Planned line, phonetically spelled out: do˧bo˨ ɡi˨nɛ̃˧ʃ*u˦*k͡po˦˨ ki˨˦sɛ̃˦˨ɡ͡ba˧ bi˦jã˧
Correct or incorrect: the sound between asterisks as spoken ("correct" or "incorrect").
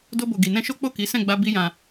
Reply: incorrect